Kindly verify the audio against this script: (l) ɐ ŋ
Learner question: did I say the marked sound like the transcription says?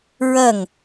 no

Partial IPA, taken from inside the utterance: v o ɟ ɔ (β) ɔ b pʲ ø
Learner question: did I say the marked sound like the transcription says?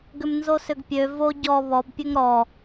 yes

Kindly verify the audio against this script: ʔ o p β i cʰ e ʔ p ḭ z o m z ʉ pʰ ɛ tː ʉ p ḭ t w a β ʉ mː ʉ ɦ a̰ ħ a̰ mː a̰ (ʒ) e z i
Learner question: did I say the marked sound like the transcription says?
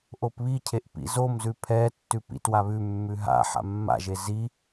yes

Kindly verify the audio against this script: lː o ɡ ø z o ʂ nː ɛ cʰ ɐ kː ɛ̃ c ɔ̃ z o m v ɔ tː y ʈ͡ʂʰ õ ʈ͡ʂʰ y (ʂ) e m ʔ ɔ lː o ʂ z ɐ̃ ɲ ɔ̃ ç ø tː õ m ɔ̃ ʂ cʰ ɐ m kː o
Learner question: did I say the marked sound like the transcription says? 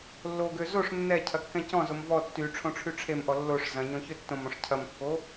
no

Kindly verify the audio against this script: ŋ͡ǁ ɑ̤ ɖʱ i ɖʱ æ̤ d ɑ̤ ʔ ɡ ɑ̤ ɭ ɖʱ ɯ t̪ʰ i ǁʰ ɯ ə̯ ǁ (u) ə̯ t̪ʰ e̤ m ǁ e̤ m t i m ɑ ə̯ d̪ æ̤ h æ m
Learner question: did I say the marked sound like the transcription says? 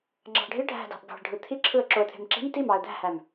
no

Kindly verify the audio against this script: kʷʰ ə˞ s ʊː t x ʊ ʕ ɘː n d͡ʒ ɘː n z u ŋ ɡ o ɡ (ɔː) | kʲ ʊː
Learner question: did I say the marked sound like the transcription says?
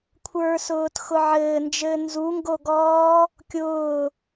yes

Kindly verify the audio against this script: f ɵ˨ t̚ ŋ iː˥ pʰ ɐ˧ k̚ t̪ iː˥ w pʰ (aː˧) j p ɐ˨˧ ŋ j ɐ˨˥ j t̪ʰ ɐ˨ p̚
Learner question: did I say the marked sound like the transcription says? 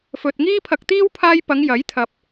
yes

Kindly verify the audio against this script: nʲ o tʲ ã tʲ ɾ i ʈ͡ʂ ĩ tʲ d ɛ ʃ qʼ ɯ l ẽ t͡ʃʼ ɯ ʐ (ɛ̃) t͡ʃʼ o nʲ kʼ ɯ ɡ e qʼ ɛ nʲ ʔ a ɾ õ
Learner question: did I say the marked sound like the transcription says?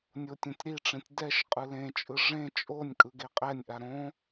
no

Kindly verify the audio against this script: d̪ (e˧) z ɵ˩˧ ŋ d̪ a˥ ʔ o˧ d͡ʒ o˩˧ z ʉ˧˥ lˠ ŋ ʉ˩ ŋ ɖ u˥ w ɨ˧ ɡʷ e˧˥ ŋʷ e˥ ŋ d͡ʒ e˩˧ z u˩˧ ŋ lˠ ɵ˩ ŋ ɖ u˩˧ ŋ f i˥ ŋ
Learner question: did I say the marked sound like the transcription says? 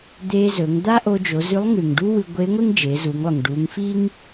yes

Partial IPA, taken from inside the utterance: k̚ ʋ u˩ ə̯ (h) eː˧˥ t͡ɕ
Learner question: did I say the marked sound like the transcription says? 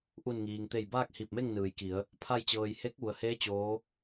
yes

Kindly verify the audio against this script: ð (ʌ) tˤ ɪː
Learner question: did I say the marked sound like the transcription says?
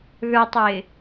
no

